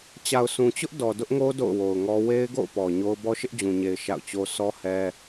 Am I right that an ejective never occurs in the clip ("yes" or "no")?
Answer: yes